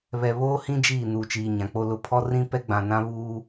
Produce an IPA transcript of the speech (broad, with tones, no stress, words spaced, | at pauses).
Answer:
βɛ˨βoː˦hĩ˦ d͡ʒiː˦˨nuː˨t͡ʃiː˨ɲã˨ k͡po˨lʊ˨ pʰɔ˦rĩ˦pɛ˦ ɡ͡bã˨nã˦βuː˦